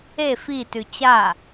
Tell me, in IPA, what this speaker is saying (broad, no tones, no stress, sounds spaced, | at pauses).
e f i t ʉ t͡ɕ a